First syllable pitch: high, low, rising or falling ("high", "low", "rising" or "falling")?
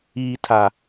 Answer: low